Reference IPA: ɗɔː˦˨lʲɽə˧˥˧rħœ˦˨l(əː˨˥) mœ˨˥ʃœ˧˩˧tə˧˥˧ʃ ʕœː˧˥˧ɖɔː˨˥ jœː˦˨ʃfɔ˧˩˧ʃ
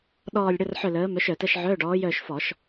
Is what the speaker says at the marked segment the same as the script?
yes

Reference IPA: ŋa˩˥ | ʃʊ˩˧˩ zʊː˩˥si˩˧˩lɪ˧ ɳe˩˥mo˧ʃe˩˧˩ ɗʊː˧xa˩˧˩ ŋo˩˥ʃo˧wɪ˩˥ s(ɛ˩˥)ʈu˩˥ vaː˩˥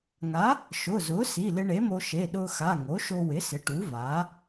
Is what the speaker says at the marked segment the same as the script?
no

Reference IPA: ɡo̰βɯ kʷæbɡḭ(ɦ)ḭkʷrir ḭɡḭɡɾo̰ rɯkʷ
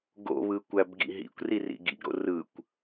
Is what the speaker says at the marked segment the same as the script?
yes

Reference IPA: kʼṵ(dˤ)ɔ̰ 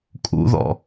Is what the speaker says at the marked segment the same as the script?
no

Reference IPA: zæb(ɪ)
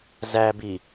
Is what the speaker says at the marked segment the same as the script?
no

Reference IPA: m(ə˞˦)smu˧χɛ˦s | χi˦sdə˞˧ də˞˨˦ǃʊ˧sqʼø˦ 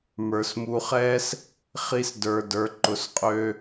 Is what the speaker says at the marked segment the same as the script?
no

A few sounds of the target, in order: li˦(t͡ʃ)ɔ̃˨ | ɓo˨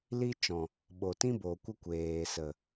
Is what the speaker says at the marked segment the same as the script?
yes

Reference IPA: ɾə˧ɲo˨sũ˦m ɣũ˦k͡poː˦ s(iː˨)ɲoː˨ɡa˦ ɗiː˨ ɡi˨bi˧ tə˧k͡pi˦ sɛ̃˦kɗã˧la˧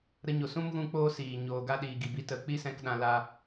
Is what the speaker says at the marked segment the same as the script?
yes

